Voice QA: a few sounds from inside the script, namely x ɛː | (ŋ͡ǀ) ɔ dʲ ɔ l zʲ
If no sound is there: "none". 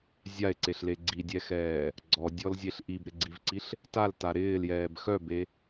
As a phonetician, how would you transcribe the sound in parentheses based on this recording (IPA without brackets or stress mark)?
ɡ͡ǀ